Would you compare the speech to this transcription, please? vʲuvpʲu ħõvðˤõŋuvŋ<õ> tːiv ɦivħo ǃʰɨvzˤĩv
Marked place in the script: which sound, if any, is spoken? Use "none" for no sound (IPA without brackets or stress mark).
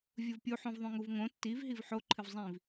õ